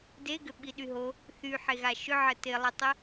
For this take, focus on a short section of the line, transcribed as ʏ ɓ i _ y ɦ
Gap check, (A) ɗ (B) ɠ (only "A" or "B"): A